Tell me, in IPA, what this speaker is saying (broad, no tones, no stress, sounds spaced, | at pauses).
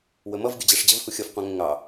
w ə m ʌ v ɡʲ ʊ d͡ʑ æ ʂ d͡ʑ ə v h u xʲ ʌ f qʷ ɑ̃ ŋ ə̃ ŋ ɑ